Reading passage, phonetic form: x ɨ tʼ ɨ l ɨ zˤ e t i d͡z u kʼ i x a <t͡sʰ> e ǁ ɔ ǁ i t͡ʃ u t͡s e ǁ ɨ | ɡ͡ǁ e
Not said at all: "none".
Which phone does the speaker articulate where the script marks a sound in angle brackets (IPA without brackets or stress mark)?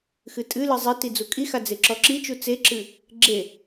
d͡z